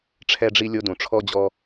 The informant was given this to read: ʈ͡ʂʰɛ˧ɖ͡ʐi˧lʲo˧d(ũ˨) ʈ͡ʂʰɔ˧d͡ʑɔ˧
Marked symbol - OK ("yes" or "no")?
yes